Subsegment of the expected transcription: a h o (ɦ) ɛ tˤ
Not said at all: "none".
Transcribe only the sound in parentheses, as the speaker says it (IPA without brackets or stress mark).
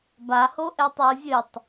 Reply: ʔ